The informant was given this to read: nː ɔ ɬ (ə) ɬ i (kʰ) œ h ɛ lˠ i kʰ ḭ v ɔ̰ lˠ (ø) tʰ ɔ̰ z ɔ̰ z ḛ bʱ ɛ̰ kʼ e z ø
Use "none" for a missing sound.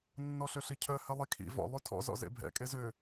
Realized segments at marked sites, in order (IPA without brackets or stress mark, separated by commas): ø, cʰ, ʉ